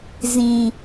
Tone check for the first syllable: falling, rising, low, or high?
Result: low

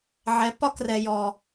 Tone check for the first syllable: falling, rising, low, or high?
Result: rising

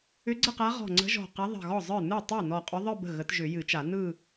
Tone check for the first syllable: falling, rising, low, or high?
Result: rising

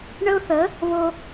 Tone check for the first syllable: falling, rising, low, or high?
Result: high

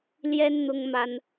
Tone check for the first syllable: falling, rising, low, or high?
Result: high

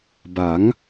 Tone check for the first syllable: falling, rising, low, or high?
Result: rising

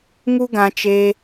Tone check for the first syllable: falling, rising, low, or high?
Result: high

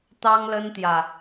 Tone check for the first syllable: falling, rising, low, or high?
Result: high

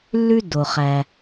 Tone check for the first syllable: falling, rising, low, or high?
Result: high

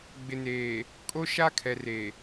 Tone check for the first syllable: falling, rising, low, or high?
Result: low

